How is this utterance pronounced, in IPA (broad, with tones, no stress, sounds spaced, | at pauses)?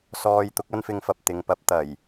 s ɔː˧ j t̪ ʊ˨˥ k̚ ɐ˥ n f ɪ˧ ŋ f ɐ˨ p̚ t̪ ɪ˨ ŋ p ɐ˧ p̚ t̪ ɐ˨˩ j